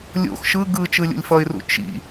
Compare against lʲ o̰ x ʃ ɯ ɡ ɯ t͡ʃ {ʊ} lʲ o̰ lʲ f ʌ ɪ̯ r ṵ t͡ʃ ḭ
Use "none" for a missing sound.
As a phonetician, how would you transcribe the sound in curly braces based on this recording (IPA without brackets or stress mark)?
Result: ɯ